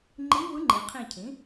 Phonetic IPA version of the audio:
ŋ͡ǃ i˧˥ v ɯ˧˥ ŋ͡ǃ i˩˧ qʰ ĩ˦˨ cʰ ĩ˩˥

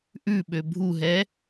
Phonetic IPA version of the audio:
ʔ ʉ ɓ ø bʱ u ɦ ɛ

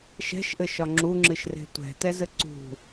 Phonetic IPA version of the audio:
ʃ ɛ̤ ʃ ʔ ɘ ʃ ɒ ŋ͡ǁ u ŋ͡ǁ ɨ ʃ r e̤ tʷ ɛ̤ t ɛ z ɘ ǀ ṳ

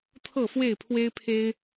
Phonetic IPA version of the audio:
t̪ʰ ɤ˥˨ f w e˥˨ ɪ̯ pʰ w e˦ ɪ̯ pʰ e˦ ɪ̯

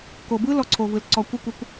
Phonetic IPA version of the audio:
k o˨ b ɯ˦ l ɔ˧ ǀʰ o˨ v ɯ˨ l ǀ ɔ˧ kʷ ɯ˦˨ kʷ ɛ˦ kʷ

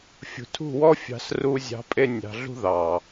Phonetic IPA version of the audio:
fʲ ṳ˨ tʰ ṳ˦˨ w ɔ˦ fʲ ɑ̤˧ s r u˧ zʲ ɑ̤˨˦ pʼ e˧ nʲ ɑ̤˨ ɮ ṳ˧ ð ɑ˨

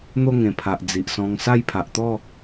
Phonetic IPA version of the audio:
n̪ o˥˧ ŋ ẽ˨˩ pʰ a˨ ʔ d͡z i˨ ʔ s ɔ̃˧ ŋ s a˥˧ j pʰ a˨ ʔ t̪ ɔ˥˧

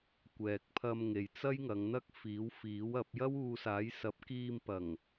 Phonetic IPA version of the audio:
kʷ ɛː˨ k̚ pʰ ɐ˧ m ŋ e˨ j t͡s ɐ˥ j ŋ ɐ˨˧ ŋ n̪ ɐ˥ k̚ f iː˨˥ w f iː˨˥ w ɐ˨˥ p̚ j ɐ˥ w uː˧ s aː˨˥ j s ɐ˨˥ p̚ k iː˧ m p ɐ˨˩ ŋ

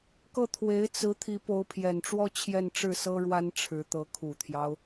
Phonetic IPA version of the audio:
k ɤ˥˩ t̪ʰ w e˧˥ ɪ̯ t͡s ɹ̩˧˥ t̪ʰ i˧˥ p o˧˥ ʊ̯ pʰ j ɛ˨˩ n ʈ͡ʂ w ɔ˥˧ t͡ɕʰ j ɛ˥˧ n ʈ͡ʂ ɻ̩˥˩ s ɤ˥ ɻ w a˥ n ʈ͡ʂʰ ɻ̩˧˥ t̪ ɤ˧˥ kʰ u˨˩ t̪ʰ j ɑ˦ ʊ̯

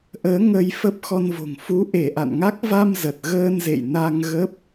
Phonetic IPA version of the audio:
ʔ əː˨˦ ŋ ə˧ j f ə˦˥ p̚ x ɔ˧ n v o̤˨˩ ŋ f u˨˦ ʔ e˧˩ ʔ a̰˧˨ n ŋ a˦˥ k̚ v a˧ m z ə˨˩ t̚ ɣ əː˧ n z ḛ˧˨ j n a˧ ŋ ɣ ə˦˥ p̚

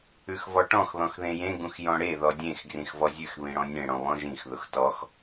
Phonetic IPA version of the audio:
ʉ x v ɔ ʈ ɔ̃ x ð ɔ̃ x ð ẽ j ẽ ɡ ũ x j ɔ̃ ɽ e ð ɔ dʲ ẽ x ɡ r ĩ x v ɔ zʲ ʉ x β ĩ ɽ ɔ̃ nʲ ẽ ɽ ɔ̃ β ɔ̃ ʒ ĩ x ð ʊ x t ɔ x

